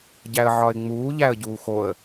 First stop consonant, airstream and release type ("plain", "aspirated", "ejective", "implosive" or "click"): plain